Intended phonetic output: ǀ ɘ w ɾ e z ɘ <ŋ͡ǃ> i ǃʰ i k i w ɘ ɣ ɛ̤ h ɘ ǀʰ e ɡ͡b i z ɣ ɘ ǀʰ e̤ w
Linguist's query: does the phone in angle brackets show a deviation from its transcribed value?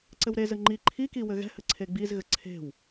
no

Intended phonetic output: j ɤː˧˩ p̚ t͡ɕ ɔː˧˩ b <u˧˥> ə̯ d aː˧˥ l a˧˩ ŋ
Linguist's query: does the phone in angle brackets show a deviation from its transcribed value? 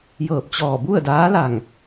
yes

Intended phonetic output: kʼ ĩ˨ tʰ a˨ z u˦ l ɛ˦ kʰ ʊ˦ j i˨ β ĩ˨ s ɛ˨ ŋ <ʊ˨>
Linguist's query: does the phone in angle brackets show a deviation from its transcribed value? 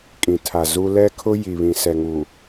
yes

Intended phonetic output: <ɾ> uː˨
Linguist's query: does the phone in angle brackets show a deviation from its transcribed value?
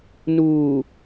yes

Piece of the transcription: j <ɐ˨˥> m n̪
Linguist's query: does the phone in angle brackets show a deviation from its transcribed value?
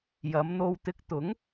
yes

